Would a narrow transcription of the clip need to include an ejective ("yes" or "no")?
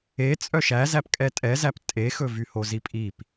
yes